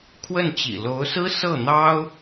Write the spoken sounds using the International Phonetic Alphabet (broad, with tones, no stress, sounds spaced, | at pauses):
kʰ w ə˥˩ n t͡ɕ ḭ˨˩ l o˧˥ ʊ̯ s ɹ̩˥ s ɤ˥˩ n̪ ɑ˥ ʊ̯